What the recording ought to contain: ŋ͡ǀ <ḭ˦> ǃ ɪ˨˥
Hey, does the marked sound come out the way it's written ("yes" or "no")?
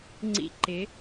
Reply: yes